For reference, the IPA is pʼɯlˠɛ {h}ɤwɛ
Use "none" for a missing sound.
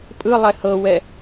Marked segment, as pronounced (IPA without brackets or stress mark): h